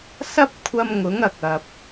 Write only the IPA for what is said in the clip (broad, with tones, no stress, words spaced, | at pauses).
sɐ˥p̚ kʷʰɐ˧mŋʊ˨˥ŋɐ˨k̚ ɐ˧p̚